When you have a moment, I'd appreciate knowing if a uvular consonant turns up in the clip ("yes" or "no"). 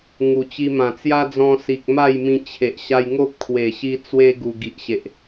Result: no